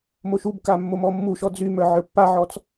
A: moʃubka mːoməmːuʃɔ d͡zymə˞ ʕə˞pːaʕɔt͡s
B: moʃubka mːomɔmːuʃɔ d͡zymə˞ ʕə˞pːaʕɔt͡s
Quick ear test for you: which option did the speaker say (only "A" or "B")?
B